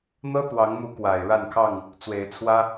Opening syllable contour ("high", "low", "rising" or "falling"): high